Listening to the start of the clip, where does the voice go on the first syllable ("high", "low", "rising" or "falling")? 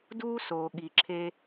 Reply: high